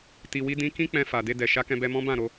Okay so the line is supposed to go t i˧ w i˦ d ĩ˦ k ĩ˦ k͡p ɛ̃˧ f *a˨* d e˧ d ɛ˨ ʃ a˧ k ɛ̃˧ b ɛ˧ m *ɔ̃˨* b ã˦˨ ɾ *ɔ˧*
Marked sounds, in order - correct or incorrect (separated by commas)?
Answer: correct, incorrect, incorrect